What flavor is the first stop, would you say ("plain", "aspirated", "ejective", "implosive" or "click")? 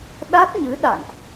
implosive